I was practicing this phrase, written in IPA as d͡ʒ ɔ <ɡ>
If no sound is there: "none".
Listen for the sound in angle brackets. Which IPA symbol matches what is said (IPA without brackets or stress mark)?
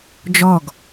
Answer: ɡ